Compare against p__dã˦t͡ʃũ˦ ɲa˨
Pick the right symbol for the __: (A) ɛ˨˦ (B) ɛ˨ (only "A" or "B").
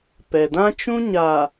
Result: B